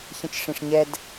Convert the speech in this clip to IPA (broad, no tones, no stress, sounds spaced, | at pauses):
ç ə̃ t͡ʃ ʂ ĩ ʂ ɲ ɛ d